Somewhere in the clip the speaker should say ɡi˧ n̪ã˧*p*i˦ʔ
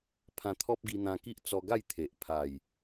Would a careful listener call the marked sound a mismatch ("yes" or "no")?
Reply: yes